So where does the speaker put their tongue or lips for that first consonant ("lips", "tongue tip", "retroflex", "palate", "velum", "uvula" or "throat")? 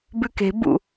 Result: lips